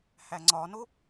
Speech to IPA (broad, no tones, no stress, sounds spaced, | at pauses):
h æ ŋ͡ǀ ɒ n o